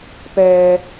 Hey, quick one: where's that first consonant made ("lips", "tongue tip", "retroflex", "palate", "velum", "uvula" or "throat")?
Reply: lips